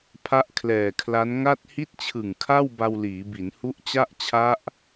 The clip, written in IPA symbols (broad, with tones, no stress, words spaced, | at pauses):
pʰa˦˥ʔkʰlɛː˨˩kʰla˦˥n ŋa˥˩t̚ hi˦˥t̚t͡ɕʰɯ˨˩ŋ kʰa˥˩w ba˧wliː˩˦ bi˩˦nhu˦˥ʔt͡ɕa˥˩ʔ t͡ɕʰa˦˥ʔ